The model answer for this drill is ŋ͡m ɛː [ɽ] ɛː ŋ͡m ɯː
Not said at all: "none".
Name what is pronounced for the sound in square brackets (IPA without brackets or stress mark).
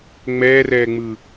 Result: r